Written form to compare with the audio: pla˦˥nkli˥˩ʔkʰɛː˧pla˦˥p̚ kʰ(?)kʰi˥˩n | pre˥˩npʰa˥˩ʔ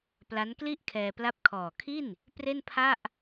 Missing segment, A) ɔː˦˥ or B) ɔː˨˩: B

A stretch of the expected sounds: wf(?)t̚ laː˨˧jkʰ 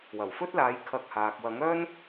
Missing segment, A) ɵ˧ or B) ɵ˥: B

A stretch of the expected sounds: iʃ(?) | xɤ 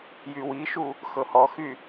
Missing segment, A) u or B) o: A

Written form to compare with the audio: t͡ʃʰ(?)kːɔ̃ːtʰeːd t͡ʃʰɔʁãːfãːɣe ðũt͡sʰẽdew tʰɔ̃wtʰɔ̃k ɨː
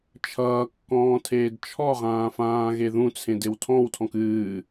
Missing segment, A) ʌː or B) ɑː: A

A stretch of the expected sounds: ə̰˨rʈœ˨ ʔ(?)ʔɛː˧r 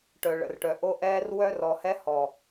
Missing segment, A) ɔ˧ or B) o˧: B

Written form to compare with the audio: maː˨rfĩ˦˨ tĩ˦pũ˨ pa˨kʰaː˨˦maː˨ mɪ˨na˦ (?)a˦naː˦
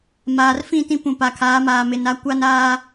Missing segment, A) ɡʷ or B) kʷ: B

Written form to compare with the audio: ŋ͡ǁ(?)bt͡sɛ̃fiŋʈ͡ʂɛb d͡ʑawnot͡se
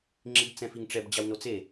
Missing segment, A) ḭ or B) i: B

